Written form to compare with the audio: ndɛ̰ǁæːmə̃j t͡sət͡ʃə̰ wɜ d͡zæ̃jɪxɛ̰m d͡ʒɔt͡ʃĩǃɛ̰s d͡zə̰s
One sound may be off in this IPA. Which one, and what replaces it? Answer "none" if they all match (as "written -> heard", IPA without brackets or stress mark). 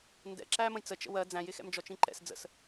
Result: none